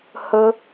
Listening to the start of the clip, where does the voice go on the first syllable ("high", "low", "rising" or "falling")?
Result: high